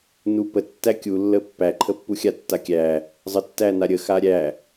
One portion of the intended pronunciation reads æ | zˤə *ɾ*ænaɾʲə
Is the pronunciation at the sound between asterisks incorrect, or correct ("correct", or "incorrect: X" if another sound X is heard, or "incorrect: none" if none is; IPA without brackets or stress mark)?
incorrect: tː